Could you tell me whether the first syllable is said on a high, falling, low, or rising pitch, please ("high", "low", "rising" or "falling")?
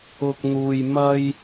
high